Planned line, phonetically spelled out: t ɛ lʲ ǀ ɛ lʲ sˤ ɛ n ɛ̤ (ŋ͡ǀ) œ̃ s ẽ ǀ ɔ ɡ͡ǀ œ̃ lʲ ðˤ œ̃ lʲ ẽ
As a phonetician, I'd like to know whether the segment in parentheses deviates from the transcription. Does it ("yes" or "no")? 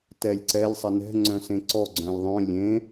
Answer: no